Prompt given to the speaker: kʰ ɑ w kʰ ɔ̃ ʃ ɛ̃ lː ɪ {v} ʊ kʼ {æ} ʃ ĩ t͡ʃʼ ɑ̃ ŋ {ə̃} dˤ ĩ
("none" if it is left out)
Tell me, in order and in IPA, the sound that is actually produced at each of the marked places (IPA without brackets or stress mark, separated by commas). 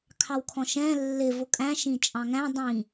v, æ̃, æ̃